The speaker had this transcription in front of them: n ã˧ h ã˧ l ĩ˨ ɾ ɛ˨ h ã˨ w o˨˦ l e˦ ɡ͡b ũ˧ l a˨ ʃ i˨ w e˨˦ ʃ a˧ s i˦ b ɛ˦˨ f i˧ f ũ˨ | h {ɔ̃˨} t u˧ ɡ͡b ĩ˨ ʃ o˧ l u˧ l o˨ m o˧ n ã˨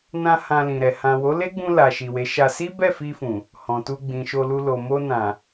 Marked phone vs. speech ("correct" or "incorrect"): correct